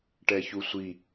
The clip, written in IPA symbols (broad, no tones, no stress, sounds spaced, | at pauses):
ʈ ɛ ç u sʷ i